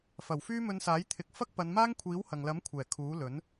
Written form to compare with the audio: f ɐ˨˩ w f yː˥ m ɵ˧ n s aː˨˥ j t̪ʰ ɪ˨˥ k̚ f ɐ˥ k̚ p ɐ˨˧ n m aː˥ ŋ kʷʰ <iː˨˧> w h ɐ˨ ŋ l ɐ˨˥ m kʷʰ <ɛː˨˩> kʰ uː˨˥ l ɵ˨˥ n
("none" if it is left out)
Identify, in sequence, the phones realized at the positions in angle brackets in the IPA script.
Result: iː˨˥, ɛː˨˩

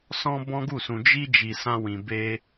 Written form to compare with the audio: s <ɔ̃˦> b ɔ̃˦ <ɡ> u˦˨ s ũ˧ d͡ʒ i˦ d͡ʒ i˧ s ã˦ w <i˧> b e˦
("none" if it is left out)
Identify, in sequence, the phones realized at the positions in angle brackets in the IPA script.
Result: ɔ̃˦, ɡ, ĩ˧

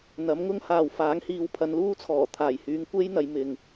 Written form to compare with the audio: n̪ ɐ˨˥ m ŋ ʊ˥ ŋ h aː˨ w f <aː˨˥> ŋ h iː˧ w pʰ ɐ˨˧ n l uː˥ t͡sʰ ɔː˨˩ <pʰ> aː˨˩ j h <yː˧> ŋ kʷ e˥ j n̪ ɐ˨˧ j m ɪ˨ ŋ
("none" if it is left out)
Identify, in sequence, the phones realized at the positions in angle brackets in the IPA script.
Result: aː˨˥, t̪ʰ, yː˨˧

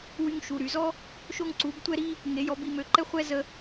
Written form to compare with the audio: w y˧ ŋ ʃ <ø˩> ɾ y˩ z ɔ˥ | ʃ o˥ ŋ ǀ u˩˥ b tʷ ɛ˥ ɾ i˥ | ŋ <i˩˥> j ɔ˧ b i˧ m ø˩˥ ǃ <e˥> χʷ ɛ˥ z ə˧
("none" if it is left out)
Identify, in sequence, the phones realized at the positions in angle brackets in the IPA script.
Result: u˩, e˩˥, ɛ˥

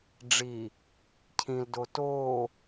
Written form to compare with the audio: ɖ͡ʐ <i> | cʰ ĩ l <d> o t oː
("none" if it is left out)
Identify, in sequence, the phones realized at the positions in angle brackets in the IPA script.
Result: i, d

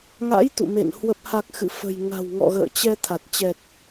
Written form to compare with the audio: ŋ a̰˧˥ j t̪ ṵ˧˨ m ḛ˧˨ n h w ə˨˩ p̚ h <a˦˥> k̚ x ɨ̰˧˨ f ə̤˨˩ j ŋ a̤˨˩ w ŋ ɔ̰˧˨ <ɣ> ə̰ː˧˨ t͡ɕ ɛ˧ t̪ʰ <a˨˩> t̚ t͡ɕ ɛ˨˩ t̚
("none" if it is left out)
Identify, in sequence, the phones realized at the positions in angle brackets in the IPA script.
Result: a˨˩, ɣ, a˨˩

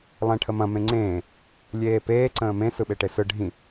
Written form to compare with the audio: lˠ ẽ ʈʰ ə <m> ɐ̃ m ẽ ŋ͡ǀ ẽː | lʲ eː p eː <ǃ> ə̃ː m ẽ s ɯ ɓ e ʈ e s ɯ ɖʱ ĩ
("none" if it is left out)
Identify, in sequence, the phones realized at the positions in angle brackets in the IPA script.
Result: m, ǀ

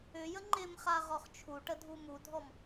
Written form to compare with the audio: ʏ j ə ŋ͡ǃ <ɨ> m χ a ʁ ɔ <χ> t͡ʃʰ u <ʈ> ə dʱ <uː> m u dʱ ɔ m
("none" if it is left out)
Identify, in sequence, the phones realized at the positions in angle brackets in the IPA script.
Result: ɪ, χ, ʈ, u

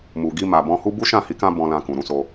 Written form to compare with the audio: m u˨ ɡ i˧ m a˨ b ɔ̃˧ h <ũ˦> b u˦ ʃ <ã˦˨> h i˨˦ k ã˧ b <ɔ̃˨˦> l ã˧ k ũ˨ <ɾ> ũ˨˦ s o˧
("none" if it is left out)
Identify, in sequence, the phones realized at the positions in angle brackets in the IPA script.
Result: u˦, ã˦˨, ɔ̃˧, ɾ

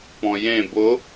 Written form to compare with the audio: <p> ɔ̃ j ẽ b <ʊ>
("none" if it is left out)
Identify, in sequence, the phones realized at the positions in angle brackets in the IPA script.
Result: p, ʊ

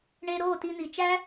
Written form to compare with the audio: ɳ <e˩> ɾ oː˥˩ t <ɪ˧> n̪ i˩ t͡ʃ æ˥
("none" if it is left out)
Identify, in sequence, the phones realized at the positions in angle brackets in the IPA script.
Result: e˧, i˧

